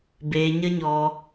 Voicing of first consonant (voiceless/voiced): voiced